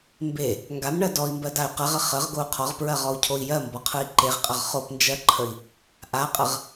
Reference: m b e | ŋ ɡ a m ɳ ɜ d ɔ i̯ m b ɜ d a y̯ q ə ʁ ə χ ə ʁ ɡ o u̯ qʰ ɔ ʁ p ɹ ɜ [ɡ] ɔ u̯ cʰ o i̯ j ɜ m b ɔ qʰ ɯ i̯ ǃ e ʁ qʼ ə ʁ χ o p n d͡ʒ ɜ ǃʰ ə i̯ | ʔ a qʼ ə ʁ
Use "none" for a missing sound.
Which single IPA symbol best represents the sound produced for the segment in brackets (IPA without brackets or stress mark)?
ʁ